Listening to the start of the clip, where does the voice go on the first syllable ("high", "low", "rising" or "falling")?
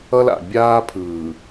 high